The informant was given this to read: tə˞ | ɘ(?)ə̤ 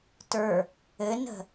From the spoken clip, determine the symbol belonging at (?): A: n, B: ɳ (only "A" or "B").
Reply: A